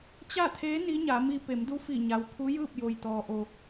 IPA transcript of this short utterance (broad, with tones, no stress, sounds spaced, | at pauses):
t͡ɕ a˥˨ t̪ʰ eː˧˥ n i˧˥ ɲ a˩˧ m i˧ p e˩˧ m d u˧˥ f i˧˩ ɲ a˩ w kʰ u˧˥ j ɯː˥˨ p̚ j o˩ j t̪ ɔː˩ ʔ o˩